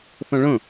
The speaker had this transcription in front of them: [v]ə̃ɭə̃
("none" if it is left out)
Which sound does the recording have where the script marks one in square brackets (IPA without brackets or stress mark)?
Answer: θ